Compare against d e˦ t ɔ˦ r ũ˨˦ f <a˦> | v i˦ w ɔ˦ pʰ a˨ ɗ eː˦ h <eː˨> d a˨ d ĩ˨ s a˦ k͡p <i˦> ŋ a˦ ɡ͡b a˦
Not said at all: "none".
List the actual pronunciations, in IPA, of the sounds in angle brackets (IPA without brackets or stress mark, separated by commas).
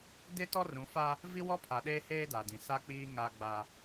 a˦, eː˦, iː˦